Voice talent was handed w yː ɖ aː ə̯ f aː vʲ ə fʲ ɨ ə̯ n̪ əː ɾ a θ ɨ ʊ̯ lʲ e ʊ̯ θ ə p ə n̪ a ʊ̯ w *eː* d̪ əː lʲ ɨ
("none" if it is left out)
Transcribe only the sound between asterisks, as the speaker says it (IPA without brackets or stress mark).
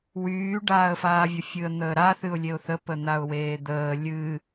eː